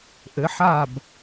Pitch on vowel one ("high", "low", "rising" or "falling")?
rising